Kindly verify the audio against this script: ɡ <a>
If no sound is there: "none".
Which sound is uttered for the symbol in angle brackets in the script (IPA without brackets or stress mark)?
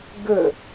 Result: ə